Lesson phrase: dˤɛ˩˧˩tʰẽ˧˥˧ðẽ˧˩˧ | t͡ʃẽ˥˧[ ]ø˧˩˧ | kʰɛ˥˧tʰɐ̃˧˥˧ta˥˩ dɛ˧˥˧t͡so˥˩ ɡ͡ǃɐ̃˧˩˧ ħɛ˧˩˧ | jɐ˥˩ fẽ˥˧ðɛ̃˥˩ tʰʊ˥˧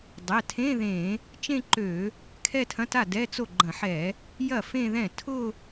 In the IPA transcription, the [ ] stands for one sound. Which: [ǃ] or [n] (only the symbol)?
ǃ